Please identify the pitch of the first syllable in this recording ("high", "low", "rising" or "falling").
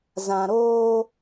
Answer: low